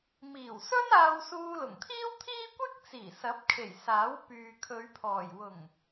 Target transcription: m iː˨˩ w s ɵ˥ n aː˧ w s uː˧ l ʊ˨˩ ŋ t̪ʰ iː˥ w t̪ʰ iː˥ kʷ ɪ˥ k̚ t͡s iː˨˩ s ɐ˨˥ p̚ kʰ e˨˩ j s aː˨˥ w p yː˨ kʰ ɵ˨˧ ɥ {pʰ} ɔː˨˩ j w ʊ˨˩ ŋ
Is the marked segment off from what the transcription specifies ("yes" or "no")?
no